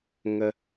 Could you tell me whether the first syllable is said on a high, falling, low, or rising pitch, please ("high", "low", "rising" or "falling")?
high